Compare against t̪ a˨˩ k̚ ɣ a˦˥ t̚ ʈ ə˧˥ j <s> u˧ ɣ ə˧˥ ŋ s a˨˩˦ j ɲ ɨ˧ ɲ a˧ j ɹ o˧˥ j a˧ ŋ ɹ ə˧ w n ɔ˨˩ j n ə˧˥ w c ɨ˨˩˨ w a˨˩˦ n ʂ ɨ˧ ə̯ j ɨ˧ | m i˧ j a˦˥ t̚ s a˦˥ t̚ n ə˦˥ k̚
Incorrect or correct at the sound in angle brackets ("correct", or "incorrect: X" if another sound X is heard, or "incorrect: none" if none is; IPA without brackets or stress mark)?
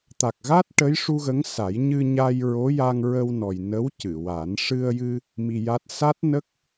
incorrect: ʂ